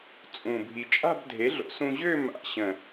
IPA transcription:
t͡sʼ ũ˨˩ bʱ i˨˩ t͡ʃʼ a̤˥˧ b dʱ e˩˥ ɮ o̰˩˥ s ũ˧ ʑ ø˥˧ m a̰˧˩˧ ɕ ə̃˨˩

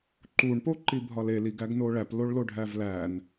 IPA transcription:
ǃ u ɳ p o ǃ i bʱ ɒ l e l i ɡ æ ɡ n o ɭ æ p l o ɭ l o ɖʱ æ v l æ n

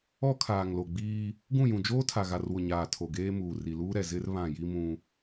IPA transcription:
ɔ˦ kʰ aː˨ ŋ l o˨ ɡ͡b iː˦ | ɡ ũ˦˨ j ũ˨ d͡ʒ oː˦ tʰ a˨ ɣ a˨ r w ʊ˨ ɲ aː˨ tʰ o˨ ɡ eː˦ m uː˨ r i˨ l uː˦ ɾ ɛ˨ z ɪ˦ r β ã˦˨ j i˦ m ũ˦

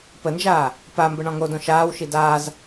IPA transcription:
p ə n d͡ʒ aː | p a m b ə ɳ ɔ̃ ŋ o d õ ʃ aː w ʃ i d aː z

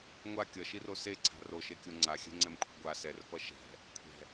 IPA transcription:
ŋʷ a kʲ ʌ ʃ i r o s e ǀʰ a̤ r o ʃ e kʲ o ŋ͡ǀ a xʲ ɛ̤ ŋ͡ǀ ɛ m kʷʰ ɛ̤ ɡʷ a s ɛ r f ʌ ʃ ɛ̤ | kʷʰ ɛ̤

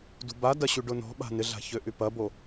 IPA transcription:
d ṳ b a d ɐ ɕ y ɖ ʊ n ɔ̤ ɓ a̤ n ɪ ɮ a̤ ç ø ʔ y p ɐ b o

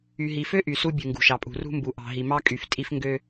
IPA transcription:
y˨ ɦ i˨ f ø˦ ʔ y˨ s u˦ bʲ ɯ˨ ŋ ɡ ṳ˨ ʃ ɑ˨ pʼ ṳ˨ r ṳ˦ m b u˨ ʔ ɑ̤˨ ɦ i˨ m ɑ˦ kʼ y˨ f tʼ i˦ f ŋ ɡ ø˦

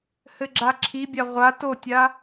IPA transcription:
h ɘ ɡ͡ǁ a ǁʰ i bʲ a ʁʷ a t o tʲ a

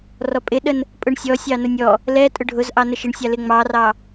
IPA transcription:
r ɔ pʼ ɪ ɗ ə n | pʼ ʊ ɳ sʲ ɔ sʲ ɑ n ʊ nʲ ɔ | l ɛ tʼ ʊ ɖʱ ʊ z ʔ ɑ n ə ʃ ɪ ɳ sʲ ɑ l ɪ ŋ͡m ɑ r ɑ

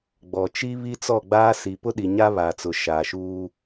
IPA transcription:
ɡ͡b ɔ˨ t͡ʃ i˦ β i˦ t͡s ɔ˦˨ ɡ͡b aː˦ s i˨ p ʊ˦ ɗ i˨ ɲ a˦ β a˨ t͡s ʊ˨ ʃ aː˨ ʃ uː˦

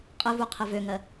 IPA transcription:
qʼ ɘ v u qʰ ɘ v ø ŋ ɜ

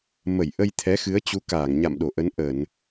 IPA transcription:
m ə˧˩ j ʔ ə˧ j t̪ʰ ɛ˨˦ x ɨ˨˦ ə̯ t͡ɕ u˨˦ k aː˧˩ ŋ ɲ a̰˧˨ m ɗ o˧˩ ʔ ə˨˦ n ʔ ə˧˩˨ n

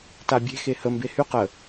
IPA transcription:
t a bʲ e̤ x e h ə m b e h y q ə

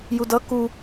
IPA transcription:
j u d ʌ k u

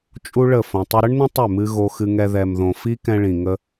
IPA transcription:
t͡ʃʼ u˦ ɭ ə˦˨ f õ˨ tˤ ʏ˧ ɾ ə˦ ɳ n ə̃˦ tˤ ʏ˦˨ m ɨ˧ ɣ o˧ x ɨ˧ ŋ ɛ˧ ð ɛ˨ m ð õ˨ f i˦ k ɛ̃˧ ɭ ĩ˨ ŋ ə˧

